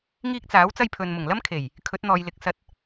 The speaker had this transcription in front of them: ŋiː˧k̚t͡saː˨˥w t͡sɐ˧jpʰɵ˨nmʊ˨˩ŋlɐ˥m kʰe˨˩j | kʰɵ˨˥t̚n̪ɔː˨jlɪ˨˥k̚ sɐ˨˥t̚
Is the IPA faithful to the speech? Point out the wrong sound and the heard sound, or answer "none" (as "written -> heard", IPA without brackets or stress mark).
none